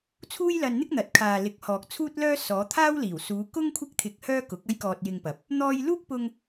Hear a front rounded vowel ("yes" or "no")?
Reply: yes